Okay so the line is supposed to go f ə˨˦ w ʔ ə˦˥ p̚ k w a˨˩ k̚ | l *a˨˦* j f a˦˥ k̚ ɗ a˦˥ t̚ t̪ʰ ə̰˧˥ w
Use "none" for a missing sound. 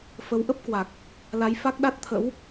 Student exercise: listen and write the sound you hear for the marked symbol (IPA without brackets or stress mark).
a˨˦